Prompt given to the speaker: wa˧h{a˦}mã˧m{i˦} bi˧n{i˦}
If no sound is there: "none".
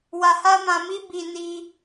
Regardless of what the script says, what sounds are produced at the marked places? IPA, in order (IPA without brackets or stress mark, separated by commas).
a˦, i˦, i˧